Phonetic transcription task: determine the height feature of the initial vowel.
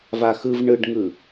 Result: low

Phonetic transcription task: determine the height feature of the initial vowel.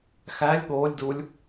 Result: low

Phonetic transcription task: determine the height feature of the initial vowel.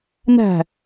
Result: low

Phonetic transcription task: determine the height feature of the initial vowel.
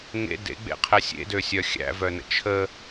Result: mid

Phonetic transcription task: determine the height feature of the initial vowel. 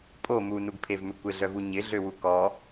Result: mid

